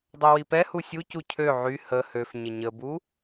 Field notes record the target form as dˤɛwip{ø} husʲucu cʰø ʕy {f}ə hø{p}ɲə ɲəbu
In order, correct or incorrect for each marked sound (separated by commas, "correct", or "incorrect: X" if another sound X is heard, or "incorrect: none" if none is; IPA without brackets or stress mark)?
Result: incorrect: ɛ, incorrect: h, incorrect: f